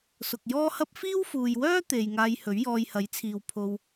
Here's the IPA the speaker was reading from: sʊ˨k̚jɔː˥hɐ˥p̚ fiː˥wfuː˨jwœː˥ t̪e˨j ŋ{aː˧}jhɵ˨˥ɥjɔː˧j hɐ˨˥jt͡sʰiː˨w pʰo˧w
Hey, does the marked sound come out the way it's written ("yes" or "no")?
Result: yes